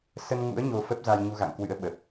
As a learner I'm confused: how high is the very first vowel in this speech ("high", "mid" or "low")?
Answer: mid